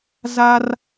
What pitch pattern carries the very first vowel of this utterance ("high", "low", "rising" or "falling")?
high